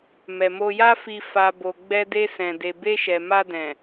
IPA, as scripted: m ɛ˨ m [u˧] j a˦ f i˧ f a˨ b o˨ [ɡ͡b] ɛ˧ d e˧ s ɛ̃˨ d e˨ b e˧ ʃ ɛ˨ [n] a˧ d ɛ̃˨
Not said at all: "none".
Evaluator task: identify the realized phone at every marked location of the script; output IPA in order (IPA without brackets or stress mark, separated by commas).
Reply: o˧, ɡ͡b, m